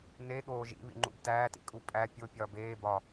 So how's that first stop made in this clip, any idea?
implosive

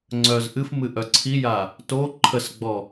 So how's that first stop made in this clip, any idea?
click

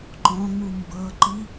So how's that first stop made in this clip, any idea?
click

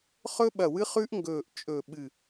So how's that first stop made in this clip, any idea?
implosive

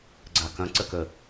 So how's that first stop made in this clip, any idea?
click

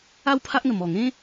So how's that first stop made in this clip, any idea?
aspirated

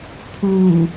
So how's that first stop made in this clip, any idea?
aspirated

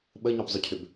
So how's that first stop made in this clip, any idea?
implosive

